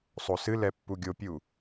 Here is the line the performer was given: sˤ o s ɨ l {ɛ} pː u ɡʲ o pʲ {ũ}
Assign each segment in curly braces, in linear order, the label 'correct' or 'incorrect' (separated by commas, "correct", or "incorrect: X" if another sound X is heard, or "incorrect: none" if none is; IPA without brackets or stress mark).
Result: correct, incorrect: u